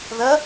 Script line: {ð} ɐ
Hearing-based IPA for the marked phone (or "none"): ð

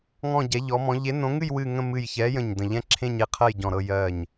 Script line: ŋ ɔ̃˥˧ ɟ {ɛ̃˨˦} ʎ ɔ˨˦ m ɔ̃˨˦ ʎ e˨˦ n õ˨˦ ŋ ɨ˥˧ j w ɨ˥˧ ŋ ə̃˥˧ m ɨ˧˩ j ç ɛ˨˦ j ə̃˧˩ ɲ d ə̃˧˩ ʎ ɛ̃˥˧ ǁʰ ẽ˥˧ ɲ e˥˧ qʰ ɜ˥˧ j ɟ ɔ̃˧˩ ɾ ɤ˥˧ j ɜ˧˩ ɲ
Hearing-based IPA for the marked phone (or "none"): ɛ˨˦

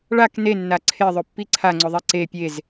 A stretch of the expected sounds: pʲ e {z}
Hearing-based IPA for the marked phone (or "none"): z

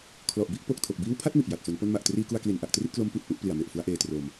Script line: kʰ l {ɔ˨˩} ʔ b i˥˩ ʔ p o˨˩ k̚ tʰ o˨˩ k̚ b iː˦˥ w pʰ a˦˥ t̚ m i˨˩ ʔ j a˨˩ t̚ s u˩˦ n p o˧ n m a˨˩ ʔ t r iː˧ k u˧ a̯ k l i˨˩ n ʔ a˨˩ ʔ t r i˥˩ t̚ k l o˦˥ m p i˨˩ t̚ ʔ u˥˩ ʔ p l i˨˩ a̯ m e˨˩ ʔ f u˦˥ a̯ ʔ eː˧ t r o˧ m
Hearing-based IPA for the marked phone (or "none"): ɔ˨˩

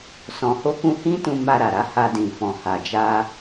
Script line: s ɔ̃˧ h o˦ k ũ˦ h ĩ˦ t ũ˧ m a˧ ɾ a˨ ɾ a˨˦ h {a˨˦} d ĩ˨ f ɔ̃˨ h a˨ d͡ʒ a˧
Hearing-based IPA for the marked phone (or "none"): a˧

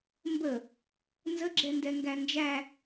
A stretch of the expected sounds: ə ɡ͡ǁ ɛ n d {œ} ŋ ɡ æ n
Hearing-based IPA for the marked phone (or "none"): ɛ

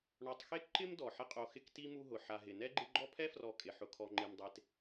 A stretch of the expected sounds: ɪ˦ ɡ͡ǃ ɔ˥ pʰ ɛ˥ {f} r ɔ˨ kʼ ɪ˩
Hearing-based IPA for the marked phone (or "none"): f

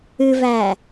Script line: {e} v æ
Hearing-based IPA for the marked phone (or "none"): ɨ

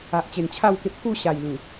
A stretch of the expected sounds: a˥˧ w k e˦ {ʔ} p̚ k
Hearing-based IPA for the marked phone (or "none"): none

